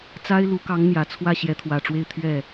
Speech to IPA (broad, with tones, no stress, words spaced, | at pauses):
t͡sa˥ɪ̯lu˧˥kɑ˧˥ŋ n̪jä˨˩t͡sʰwä˥˩ ɕjɛ˧˥t̪ʰwä˨˩ʈ͡ʂwe˥˧ɪ̯ t̪ʰɥɛ˥˩